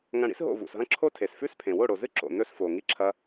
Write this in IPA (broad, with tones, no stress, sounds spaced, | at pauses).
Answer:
ŋ ɐ̃˦˨ ɽ ḭ˦ s ɦ o̰˦˨ v ṵ˨ s ɦ ɐ̃˦ ǁʰ o˦ tʰ e˨ s f ʉ˦ s pʰ ẽ˨ w o˦˨ ɽ o˨ z ɨ˦ ǁ o̰˨ n ɵ˦ s f o˨ ŋ i˦ ǁʰ ɐ˦